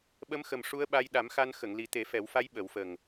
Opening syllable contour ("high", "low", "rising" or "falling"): rising